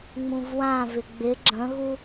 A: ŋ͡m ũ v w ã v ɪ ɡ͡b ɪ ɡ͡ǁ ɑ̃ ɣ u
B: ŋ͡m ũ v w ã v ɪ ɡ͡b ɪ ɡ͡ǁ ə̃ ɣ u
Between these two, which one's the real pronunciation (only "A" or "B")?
B